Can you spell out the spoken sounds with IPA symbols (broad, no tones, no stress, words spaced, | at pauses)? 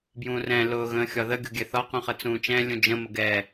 bjũːrɛ̃ lʊːɣə̃ːxʲɒðə ɡʲo̤ɡʲɛθɒ qũχət͡sũːt͡ʃɛ̃ lʲũd͡ʒə̃ məɡɛ